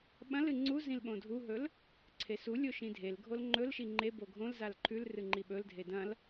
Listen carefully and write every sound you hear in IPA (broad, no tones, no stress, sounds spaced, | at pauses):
ɓ ɐ̃ l ɨ ŋ͡ǀ u z ĩ l ɓ õ dʱ u ɦ ɵ l | ǀʰ e s u lʲ o ʃ ĩ dʱ e l ɡʱ o l ŋ͡ǃ ɵ l ʃ i ŋ͡ǃ e b o ɡʱ õ l z a l ǃʰ ʉ l r ɨ ŋ͡ǃ i ɓ ɵ l dʱ e d ɐ̃ l